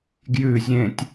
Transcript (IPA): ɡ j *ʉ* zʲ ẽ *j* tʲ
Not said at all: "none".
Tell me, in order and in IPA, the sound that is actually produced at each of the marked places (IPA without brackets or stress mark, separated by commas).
ʉ, none